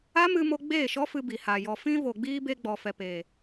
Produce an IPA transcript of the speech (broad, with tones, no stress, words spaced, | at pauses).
a˦mɨ˧mo˧ ɡ͡beː˦˨ʃɔ˦fɨ˧bi˨ ha˨ jɔ˨fĩ˧vo˨ɡ͡biː˧ be˧ɡ͡bɔ˨fɛ˨peː˨